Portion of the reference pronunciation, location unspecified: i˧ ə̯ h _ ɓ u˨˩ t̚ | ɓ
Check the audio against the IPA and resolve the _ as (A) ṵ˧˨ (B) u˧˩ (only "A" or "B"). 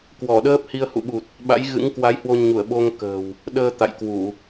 A